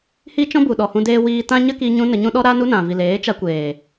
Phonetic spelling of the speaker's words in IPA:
h i˦ t͡ʃ ɔ̃˦ b u˨ ɗ ɔ˨ h ũ˧ d eː˧ w iː˧ t ã˦ ɲ ə˦ k i˧ ɲ ũ˦ n ə˧ ɲ ũ˦ ɗ ɔ˦ ɾ a˦ n u˦ n ã˨ v i˨ l eː˨˦ t͡ʃ a˧ kʷ eː˨

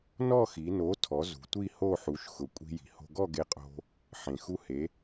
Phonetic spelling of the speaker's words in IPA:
n ɔ˥˧ x i˩˧ n o˨˥ tʰ ɔ˩˧ z ṳ˩˧ tʷ i˥˧ h o˥˧ ħ u˩˧ ʃ x ʊ˩ kʷʼ i̤˧ j i̤˩˧ h o̤˧ ɡ ɔ˥˧ ɡ e˧ qʼ o̤˧ | ħ ẽ˩ x u˧ h e˩˧

